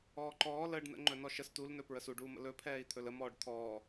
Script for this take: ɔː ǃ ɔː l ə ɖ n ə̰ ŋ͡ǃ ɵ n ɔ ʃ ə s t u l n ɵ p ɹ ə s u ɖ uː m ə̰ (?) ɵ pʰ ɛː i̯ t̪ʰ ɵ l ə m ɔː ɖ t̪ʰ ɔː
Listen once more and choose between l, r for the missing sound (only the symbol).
l